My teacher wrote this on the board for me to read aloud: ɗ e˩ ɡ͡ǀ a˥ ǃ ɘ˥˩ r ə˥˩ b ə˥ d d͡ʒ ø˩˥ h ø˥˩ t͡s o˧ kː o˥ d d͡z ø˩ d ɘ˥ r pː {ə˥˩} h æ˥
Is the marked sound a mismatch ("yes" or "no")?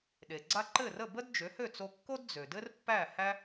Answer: yes